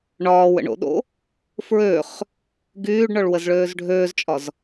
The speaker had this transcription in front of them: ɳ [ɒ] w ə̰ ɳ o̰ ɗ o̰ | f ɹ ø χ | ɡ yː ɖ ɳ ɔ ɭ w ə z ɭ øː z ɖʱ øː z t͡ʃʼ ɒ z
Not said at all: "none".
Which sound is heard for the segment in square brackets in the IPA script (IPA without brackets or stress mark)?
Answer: ɒː